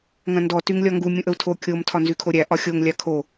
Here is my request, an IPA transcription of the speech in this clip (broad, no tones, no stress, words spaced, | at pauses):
ŋɐ̃ndɔ tyŋlʲɒŋɡu mʲũʔəu̯tʰo kʲom tʰɒnzykʰoɾʲæ ʔɒxʲoŋ lʲakʰo